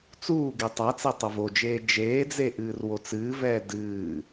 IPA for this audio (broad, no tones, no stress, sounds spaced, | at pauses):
t͡s uː ɡ e tˤ a t͡s ɛ tˤ ɐ v o d͡ʒ eː d͡ʒ eː d͡z e ʔ ɨː r w o t͡s ɨː v ɛː d ɨː